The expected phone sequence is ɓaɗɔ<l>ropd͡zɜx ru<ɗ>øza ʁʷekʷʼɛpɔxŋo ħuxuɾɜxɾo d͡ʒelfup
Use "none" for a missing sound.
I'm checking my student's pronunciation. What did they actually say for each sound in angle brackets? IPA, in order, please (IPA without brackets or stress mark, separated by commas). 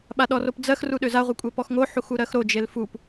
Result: none, ɗ